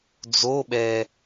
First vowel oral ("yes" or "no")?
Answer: yes